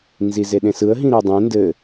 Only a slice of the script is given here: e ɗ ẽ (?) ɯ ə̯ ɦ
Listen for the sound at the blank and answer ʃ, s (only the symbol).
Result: s